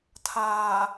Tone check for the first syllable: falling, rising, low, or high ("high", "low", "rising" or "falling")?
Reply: low